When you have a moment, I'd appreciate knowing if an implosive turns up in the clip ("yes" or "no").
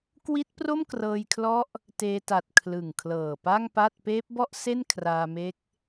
no